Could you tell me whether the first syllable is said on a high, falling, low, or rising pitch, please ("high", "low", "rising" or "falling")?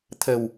low